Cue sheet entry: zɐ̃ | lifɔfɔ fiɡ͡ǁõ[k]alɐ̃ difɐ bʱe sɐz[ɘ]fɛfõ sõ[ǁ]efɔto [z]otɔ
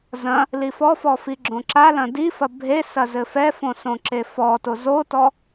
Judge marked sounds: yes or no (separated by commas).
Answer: no, yes, yes, yes